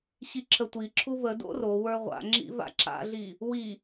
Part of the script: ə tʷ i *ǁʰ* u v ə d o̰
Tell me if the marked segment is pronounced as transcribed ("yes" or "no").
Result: yes